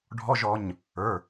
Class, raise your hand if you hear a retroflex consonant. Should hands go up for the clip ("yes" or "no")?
yes